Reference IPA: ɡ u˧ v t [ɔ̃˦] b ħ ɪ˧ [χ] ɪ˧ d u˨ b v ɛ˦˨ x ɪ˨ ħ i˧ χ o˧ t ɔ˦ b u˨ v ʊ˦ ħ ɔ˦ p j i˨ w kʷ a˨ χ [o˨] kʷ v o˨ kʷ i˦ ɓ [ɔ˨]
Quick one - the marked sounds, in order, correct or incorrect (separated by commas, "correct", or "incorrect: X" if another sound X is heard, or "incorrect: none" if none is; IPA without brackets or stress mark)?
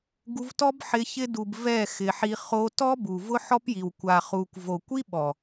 incorrect: ɔ˦, incorrect: ç, incorrect: u˨, correct